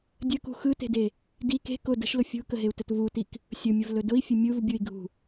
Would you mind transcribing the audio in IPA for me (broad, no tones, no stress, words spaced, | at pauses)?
dʲəkṳ xɯte̤de | di ke̤ kʊ də̤ʃlʊ fʲṳkəɦeu̯tɵt vutik | sʲʊmʲʊvlɵ dʊi̯fʲɵ mʲuvbʲui̯ɡʱṳ